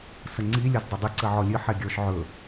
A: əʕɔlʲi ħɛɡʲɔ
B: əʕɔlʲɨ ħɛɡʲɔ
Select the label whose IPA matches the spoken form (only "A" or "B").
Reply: B